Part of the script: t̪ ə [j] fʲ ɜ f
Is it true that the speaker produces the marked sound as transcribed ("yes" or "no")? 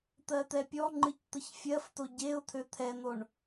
no